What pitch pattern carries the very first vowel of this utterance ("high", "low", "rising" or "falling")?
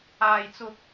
low